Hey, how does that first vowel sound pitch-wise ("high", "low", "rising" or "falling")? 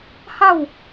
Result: falling